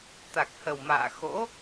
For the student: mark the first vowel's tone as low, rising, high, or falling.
low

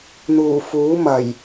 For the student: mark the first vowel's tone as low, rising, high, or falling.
low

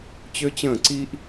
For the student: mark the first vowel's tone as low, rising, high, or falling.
high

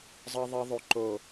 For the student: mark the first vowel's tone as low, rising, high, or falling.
low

